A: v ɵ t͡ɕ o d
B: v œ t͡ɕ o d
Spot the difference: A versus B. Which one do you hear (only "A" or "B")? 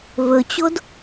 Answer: A